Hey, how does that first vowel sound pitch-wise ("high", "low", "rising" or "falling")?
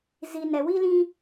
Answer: low